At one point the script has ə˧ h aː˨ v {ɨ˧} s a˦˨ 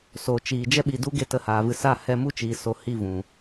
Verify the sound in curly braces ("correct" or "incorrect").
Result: correct